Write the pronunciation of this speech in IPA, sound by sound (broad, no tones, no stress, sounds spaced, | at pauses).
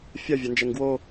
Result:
fʲ ɐ vʲ ɐ n d͡ʒ ɛ ŋ ɡ w o